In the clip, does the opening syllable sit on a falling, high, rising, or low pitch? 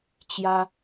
high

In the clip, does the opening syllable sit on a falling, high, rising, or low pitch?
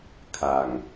low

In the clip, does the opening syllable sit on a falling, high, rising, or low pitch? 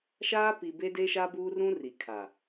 high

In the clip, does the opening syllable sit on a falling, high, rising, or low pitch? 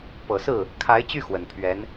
low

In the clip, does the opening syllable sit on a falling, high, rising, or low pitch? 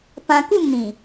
high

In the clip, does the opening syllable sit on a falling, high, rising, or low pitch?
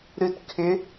low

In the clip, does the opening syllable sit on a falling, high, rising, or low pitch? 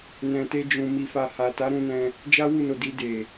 low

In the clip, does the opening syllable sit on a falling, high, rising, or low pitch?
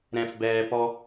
low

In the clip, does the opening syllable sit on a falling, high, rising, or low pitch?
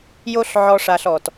high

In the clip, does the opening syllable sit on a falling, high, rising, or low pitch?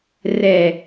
low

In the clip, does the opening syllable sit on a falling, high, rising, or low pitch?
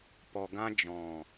low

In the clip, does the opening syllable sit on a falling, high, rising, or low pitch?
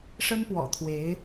high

